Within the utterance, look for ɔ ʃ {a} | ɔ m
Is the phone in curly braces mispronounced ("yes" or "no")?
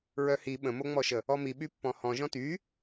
yes